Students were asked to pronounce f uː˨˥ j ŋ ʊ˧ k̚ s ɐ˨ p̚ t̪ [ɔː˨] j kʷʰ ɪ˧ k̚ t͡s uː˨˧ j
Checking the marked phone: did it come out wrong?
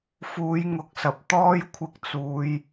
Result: yes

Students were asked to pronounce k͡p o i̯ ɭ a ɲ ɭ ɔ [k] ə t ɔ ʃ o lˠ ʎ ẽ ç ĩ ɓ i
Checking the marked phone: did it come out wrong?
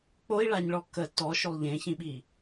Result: no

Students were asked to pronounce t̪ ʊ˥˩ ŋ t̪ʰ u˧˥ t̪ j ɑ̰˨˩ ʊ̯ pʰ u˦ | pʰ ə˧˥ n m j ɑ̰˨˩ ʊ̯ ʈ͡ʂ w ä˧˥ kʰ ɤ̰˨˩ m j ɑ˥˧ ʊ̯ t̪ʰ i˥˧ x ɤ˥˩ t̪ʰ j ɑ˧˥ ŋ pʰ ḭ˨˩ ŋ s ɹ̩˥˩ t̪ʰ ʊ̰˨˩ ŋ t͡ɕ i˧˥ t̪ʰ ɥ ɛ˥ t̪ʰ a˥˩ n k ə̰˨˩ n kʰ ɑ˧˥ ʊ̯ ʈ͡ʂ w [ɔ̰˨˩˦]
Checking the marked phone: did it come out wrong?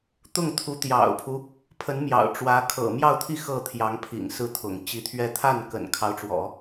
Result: no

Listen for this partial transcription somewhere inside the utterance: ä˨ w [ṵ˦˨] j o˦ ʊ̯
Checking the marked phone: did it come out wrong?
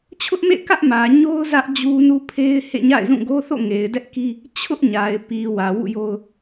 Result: no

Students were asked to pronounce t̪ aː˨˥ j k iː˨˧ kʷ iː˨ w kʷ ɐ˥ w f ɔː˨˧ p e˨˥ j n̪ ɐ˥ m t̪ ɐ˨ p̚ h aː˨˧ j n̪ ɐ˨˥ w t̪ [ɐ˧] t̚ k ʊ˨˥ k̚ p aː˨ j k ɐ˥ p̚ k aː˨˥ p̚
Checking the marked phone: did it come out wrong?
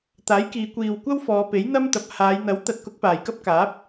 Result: yes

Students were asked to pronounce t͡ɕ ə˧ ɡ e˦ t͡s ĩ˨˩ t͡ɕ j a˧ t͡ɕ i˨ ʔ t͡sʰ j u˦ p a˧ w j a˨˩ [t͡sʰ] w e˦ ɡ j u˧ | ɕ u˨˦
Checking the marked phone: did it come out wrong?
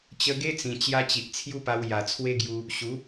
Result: no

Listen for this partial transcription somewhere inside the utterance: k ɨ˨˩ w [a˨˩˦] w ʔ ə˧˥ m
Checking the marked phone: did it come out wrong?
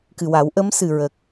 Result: no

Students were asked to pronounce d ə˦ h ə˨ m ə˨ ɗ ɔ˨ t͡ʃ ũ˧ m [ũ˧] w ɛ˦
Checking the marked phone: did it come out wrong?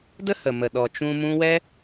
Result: no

